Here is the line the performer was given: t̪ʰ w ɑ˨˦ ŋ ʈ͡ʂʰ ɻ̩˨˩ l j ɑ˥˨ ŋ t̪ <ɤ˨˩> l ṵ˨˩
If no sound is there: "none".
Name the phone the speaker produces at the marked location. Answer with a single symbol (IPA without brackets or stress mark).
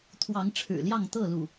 ɤ˥˨